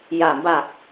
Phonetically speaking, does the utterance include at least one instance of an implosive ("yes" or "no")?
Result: no